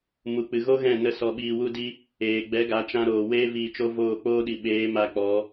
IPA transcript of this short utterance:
m u˧ k͡p ɨ˧ ɣ o˦ ɣ ɛ̃˦˨ n ə˧ s ɔ˧ ɓ iː˧ w u˦ d i˦ | eː˨ ɡ͡b ɛ˨˦ ɡ a˨˦ t͡ʃ ã˧ ɾ oː˨ w eː˦ v iː˧ t͡ʃ o˦ v oː˦˨ k͡p oː˦ ɗ i˨ ɓ eː˨˦ m a˧ k͡p ɔ˨˦

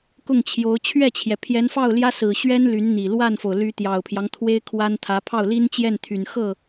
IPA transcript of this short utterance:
k ʊ˥˩ ŋ t͡ɕʰ j o˧˥ ʊ̯ t͡ɕʰ ɥ ɛ˥˩ t͡ɕʰ j ɛ˩ pʰ j ɛ˧˥ n f ɑ˥˩ ʊ̯ l j ä˥ s ɹ̩˨˩ ɕ ɥ ɛ˥ n l y˧˥ n n̪ i˨˩ l w a˥˩ n f o˩ ʊ̯ l y˧˥ t̪ j ɑ˨˩ ʊ̯ pʰ j ɑ˦ ŋ t̪ʰ w e˥ ɪ̯ kʰ w a˥ n t̪ʰ ä˧˥ pʰ ɑ˥˩ ʊ̯ l i˥ n t͡ɕ j ɛ˥˩ n t̪ʰ y˨˩ n x ɤ˥˩

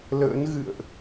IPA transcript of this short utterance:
l ə̰ː˧˥ n ɣ ɨ̰˧˨ ə̯ ʔ

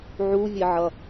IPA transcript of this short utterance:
ʕ u vʲ ɘ ʕ ʌ

